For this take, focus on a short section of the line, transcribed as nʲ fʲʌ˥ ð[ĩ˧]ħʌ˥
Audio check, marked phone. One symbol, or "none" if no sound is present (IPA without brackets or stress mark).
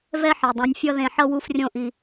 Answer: ẽ˧